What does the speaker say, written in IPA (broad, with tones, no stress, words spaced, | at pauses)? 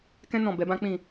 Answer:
kɛ̃˦ nɔ̃˦˨ bɛ˨˦bã˦ k͡pĩ˦˨